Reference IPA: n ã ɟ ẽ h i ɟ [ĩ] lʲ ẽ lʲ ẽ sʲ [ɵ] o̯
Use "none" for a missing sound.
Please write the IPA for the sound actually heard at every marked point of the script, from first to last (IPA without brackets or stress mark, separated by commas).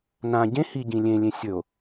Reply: ĩ, ɵ